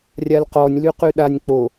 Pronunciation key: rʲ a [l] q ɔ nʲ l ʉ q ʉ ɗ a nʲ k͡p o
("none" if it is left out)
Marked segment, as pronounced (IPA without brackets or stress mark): l